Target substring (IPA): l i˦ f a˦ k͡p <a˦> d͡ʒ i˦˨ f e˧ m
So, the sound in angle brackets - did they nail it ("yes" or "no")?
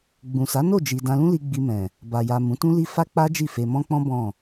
yes